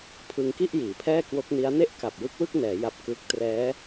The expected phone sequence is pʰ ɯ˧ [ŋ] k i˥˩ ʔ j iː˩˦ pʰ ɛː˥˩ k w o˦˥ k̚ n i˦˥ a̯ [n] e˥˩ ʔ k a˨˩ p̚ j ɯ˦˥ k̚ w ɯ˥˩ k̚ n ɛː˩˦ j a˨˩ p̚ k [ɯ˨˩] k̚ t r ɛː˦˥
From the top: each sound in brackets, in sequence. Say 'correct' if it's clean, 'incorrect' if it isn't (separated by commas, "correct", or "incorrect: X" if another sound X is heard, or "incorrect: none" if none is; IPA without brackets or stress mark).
correct, correct, incorrect: ɯ˦˥